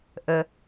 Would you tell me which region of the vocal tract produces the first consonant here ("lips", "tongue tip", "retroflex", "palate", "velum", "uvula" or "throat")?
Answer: throat